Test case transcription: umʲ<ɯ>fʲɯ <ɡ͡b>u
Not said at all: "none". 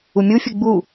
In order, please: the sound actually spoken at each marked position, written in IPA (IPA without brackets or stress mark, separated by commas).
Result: u, ɡ͡b